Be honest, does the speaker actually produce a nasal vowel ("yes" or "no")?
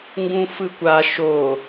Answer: yes